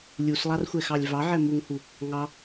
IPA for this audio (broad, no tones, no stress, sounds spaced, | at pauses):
lʲ u s lˠ ɑ r xʷ ɛ x ɑ lʲ v ɑ ʕ ɛ m u ŋ h u | ŋ ɑ